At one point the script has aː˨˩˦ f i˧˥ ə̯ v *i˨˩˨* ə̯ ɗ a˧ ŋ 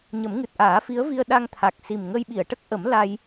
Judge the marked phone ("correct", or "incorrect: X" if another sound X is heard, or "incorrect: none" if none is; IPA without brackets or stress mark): incorrect: i˧